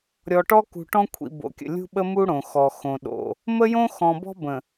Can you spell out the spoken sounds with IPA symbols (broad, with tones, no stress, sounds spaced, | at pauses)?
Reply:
ɾʲ ɔ˨ ʈ ɔ˦ k ṳ˨ ʈ ɔ̃˦ kʷʰ ḭ˨ b o̰˨ kʲ ə̰˨ lʲ ṳ˦ ɓ ə˦ m u˦ ɽ õ˨ x ɔ˨ x õ˨ ɗ o̰˨ | m ə˦ j õ˦ x ɔ̃˨ b ɔ̤˦ b ə̃˨